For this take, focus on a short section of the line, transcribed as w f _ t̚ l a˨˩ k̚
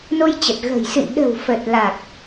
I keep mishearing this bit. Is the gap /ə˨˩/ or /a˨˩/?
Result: ə˨˩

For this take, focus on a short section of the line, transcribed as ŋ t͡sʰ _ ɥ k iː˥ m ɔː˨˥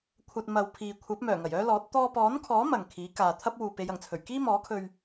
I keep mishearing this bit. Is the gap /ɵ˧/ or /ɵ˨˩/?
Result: ɵ˨˩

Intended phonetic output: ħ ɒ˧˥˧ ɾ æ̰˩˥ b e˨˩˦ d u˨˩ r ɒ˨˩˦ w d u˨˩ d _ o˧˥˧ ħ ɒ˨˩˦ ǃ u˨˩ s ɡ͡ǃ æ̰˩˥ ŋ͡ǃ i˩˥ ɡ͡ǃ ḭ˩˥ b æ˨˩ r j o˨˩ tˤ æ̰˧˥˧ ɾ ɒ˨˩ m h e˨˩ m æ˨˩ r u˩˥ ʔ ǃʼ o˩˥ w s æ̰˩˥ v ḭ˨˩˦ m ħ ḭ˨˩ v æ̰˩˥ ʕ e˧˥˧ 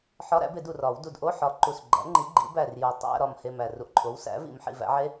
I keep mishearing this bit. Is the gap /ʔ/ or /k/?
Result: ʔ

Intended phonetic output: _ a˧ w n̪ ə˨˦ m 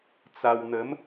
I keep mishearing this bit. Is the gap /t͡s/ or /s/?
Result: t͡s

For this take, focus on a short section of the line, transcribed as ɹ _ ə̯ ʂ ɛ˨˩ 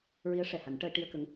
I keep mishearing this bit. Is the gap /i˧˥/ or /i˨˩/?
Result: i˧˥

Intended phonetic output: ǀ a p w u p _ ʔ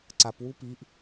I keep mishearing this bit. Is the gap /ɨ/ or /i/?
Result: i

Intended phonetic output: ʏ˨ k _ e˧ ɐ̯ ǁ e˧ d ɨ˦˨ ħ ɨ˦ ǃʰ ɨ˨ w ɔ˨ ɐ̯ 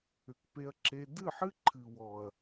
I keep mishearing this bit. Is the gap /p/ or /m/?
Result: p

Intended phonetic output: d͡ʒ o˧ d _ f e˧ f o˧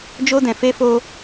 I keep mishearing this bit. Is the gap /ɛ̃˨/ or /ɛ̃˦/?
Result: ɛ̃˨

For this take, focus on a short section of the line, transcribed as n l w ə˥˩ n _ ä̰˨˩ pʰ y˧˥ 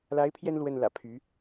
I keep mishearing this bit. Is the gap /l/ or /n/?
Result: l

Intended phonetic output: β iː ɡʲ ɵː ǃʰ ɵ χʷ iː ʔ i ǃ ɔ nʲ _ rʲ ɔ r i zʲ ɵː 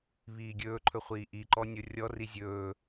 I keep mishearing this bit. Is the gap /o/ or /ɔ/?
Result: o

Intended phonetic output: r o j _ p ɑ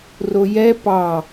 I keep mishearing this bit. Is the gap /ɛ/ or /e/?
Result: ɛ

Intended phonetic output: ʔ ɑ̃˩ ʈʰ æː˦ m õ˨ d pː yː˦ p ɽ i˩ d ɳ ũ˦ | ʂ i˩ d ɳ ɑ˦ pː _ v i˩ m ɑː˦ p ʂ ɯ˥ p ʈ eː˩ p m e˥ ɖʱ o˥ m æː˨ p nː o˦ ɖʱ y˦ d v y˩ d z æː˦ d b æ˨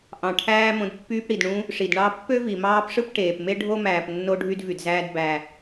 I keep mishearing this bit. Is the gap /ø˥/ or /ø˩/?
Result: ø˥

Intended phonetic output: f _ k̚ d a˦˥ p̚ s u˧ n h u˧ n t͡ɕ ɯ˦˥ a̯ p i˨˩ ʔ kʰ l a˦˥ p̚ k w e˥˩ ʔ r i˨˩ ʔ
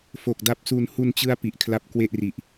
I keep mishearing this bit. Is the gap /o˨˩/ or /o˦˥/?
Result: o˨˩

